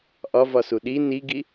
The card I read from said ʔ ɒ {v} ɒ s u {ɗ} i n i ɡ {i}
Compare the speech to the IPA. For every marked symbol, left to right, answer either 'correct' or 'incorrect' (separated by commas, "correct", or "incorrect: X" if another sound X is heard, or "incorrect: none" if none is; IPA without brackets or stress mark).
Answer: correct, correct, correct